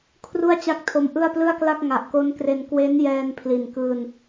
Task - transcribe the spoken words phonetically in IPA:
kʰ r u˥˩ a̯ t͡ɕ a˥˩ k̚ tʰ o˧ m ʔ ɯ˥˩ a̯ p l ɯ˥˩ a̯ k l a˥˩ k̚ ŋ a˨˩ ʔ k o˦˥ n k r e˧ n k w e˦˥ n j ɛː˧ n pʰ l i˨˩ n k ɯː˧ n

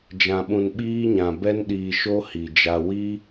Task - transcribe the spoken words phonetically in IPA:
d͡ʒ ã˨ ɓ ũ˨ n ɓ iː˧ ɲ ã˨ b ɛ˧ n ɗ iː˨ ʃ o˧ h i˨ d͡ʒ a˧ w i˦

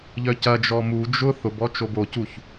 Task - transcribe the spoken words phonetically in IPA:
ʎ œ c ɐ d͡ʒ ɔ m u d͡ʒ ʊ θ ʊ b ɔ t͡ʃ o b o c u ç

